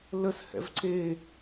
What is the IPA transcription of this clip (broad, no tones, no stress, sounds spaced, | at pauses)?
l ə s h ɛ̰ v ǀ e